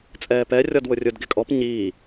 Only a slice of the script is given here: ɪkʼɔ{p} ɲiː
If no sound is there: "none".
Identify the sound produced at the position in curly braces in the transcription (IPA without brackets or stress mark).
p